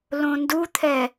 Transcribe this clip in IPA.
l õ n d u t̪ʰ ɛ

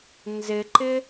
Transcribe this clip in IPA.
n z ɪ ǃ ɪ

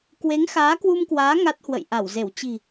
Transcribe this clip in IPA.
k w e˨˦ ŋ x aː˨˦ k w u˧ m k w aː˨˦ ŋ a˦˥ t̚ h w ə̰˧˨ j ʔ a˧˩ w z e˧˩ w t͡ɕ i̤˨˩

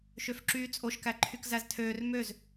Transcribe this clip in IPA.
ʃ ø f ǁ yː t͡sʼ o ʃ k æ ǃʰ y k z æ z tʰ øː r m ø z

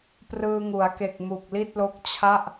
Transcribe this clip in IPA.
p r ɯː˧ ŋ u˩˦ a̯ k e˨˩ k̚ m u˨˩ k̚ l i˥˩ t̚ l o˦˥ k̚ t͡ɕʰ a˥˩ ʔ

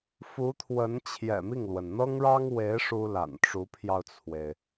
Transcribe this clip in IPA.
f u˧˥ t̪ʰ w ə˧˥ n t͡ɕʰ j ɛ̰˨˩ m i˥˩ ŋ l w ə˩ n n̪ ɤ˥ ŋ ɻ ɑ˥ ŋ w e˧˥ ɪ̯ ʂ u˥ l a̰˨˩ n ʈ͡ʂ u˧˥ pʰ j ɑ˧ ʊ̯ t͡sʰ w e˩ ɪ̯

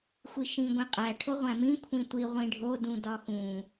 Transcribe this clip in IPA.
xʷ i ʃ ĩ ɡʷ ĩ qʼ æ ʈʰ o ʁʷ æ̃ m ĩ kʷʰ ĩ tʷ i ʁʷ ĩ ɖʱ o d ũ d ɒ x ũ

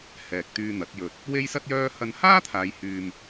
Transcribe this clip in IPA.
h ɛː˨ k̚ t̪ yː˧ n̪ ɐ˨˥ t̚ j ɵ˧ t̚ | w e˥ j s ɐ˥ t̚ j œː˥ h ɐ˧ n h aː˥ t̪ʰ aː˨˧ j h yː˧ m

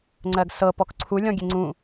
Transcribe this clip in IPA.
ŋ͡ǀ ɜ ɡ s ɤ p ɔ k ǀʰ u lʲ ɔ̃ ɡʲ e ŋ͡ǀ ũ

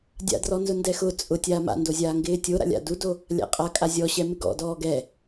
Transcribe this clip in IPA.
dʲ a̰ d r ɔ n z ʊ n d ɛ x ʊ t͡sʼ ʊ tʲ aː m a̰ n d o zʲ aː ŋ ɡ ɪː tʲ o ɾ a̰ lʲ a̰ d u d o | lʲ a̰ qʼ a kʼ a zʲ ɔ ɕ ɛ m ɪ ɡ ɔ̰ d ɔː ɡ ɛ

